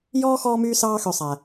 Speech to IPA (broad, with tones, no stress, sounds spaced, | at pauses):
j ɔː˥ x ɔː˦ m yː˦ s ɑː˦ x ø˨ sˤ æ˩